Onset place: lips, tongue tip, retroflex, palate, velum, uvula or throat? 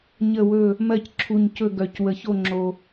palate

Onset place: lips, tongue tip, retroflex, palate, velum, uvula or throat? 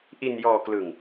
throat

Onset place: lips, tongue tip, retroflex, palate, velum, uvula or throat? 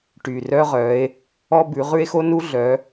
retroflex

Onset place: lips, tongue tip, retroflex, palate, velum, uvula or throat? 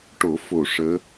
retroflex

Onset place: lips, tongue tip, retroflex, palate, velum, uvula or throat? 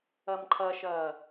lips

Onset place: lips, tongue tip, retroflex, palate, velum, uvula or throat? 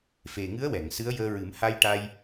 lips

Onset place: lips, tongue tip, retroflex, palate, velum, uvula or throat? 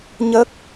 palate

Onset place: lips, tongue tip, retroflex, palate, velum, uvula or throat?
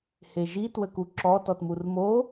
throat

